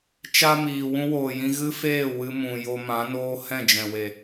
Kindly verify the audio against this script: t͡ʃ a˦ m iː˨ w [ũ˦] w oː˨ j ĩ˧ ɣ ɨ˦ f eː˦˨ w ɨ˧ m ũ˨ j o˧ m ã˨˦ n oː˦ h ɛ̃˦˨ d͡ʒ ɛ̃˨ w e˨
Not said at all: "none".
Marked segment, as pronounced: ũ˦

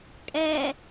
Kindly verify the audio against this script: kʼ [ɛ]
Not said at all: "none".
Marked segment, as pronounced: ɛ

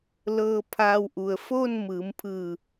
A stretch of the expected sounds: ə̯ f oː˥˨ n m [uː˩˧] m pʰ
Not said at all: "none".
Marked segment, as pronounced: ɯː˩˧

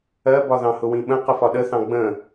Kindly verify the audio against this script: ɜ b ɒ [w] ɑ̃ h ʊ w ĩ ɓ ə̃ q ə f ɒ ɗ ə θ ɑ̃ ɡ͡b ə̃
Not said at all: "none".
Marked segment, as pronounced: ð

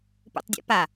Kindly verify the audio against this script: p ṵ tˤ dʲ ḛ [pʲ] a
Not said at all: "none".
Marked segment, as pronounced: p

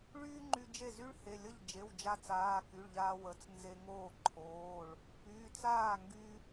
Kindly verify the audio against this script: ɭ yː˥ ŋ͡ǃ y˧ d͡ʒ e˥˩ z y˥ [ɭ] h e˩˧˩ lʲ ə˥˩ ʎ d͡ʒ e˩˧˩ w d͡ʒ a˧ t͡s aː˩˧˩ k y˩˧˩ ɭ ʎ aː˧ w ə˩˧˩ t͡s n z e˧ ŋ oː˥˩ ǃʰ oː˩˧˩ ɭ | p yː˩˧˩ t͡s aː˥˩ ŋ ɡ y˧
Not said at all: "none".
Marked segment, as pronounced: ɭ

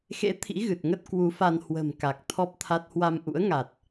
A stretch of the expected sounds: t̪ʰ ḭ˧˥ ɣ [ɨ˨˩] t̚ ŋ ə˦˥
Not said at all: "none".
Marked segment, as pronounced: ɨ˨˩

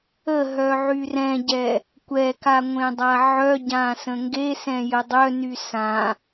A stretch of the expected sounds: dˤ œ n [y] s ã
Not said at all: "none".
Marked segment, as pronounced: y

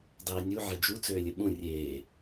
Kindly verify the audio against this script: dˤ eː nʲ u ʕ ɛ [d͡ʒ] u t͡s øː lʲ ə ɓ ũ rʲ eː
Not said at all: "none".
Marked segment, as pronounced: d͡ʒ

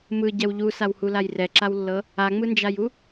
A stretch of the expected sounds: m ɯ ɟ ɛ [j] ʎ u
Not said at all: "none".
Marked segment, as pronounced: w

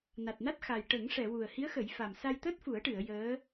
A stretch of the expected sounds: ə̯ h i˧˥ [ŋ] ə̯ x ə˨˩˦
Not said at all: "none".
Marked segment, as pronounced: none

